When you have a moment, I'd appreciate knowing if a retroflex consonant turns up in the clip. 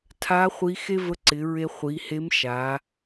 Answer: no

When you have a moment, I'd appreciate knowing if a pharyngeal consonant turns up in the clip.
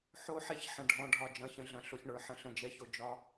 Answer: yes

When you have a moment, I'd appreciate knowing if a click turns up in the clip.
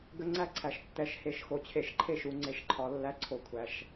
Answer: yes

